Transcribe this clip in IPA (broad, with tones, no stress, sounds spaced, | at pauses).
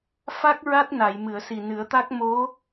f a˦˥ k̚ ɹ a˦˥ t̚ n a˨˩˨ j m ɨ˨˩˨ ə̯ s i˨˩ n ɨ˨˩˦ ə̯ t̪ a˦˥ k̚ m o˧˥